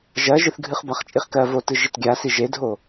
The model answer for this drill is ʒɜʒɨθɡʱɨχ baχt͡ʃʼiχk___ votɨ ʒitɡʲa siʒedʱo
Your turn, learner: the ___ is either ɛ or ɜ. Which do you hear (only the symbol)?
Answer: ɜ